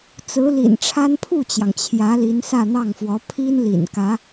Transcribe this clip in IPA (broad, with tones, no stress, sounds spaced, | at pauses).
t͡s ɹ̩˧˥ l ḭ˨˩ n ʈ͡ʂʰ a˥ n pʰ u˥˩ t͡ɕ j ɑ˩ ŋ t͡ɕʰ j ä˧˥ l i˧˥ n s ä˥˧ n̪ ɑ˥˩ ŋ f w ɔ˧˥ pʰ i˥ n l ḭ˨˩ n k ä˧˥